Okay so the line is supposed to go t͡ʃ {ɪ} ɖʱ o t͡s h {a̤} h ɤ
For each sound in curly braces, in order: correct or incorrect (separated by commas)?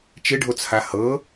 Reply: correct, incorrect